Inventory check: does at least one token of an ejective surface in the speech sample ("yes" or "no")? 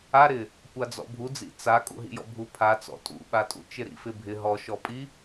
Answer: yes